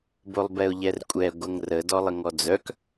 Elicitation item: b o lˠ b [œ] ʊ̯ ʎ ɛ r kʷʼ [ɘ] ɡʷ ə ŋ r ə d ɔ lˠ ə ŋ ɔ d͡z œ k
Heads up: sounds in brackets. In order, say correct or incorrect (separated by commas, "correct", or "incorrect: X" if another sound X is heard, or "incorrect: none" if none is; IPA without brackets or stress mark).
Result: incorrect: ɛ, incorrect: ɛ